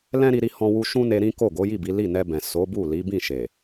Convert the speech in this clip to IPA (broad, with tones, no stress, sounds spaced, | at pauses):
l ɛ̃˦ ɾ i˦ ɾ i˦ h ɔ̃˦ w u˦ ʃ ũ˦ n e˧ ɾ ĩ˦ k o˦˨ ɡ o˨˦ j i˦˨ b i˨˦ l i˦˨ n ɛ˧ b ɛ̃˨ s o˨˦ b u˦˨ l i˨˦ b ĩ˦˨ ʃ e˨